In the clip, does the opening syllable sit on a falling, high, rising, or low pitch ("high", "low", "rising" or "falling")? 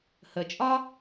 low